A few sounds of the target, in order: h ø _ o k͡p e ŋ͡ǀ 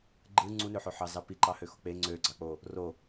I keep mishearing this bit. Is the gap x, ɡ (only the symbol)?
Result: x